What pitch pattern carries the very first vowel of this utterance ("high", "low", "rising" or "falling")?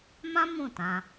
high